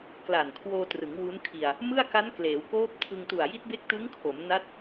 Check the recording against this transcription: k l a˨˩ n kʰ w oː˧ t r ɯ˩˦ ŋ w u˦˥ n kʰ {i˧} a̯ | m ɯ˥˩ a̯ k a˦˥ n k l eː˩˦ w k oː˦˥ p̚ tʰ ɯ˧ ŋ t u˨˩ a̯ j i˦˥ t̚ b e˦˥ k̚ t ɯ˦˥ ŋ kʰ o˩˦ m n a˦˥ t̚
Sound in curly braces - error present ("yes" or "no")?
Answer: no